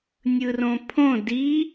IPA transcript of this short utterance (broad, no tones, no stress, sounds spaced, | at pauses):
nʲ ɯ r õ pʰ õ d i